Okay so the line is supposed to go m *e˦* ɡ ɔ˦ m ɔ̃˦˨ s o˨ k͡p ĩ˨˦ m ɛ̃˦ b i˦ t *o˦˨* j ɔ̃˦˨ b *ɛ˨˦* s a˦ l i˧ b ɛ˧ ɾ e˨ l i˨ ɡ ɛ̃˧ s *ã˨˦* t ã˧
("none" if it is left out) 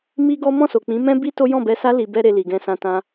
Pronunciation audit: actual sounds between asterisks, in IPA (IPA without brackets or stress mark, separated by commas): i˦, o˦, ɛ˧, ã˧